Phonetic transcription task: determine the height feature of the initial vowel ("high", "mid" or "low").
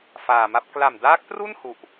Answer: low